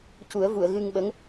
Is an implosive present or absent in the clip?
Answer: present